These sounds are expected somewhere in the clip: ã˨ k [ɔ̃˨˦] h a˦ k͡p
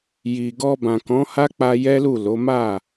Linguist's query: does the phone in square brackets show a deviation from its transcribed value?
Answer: no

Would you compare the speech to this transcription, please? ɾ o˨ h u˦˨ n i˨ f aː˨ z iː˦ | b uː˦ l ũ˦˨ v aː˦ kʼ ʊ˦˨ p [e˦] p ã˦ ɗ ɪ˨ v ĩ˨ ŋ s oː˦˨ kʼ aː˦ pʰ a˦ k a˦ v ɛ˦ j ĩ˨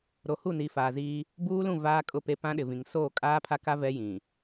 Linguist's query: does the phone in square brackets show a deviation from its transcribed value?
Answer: no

